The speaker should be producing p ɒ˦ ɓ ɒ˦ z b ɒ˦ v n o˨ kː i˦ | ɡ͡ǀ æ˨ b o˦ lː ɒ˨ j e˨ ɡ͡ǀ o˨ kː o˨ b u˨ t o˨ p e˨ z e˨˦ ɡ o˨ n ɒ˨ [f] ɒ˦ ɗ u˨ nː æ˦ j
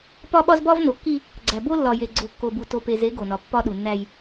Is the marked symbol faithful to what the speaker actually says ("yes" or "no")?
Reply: no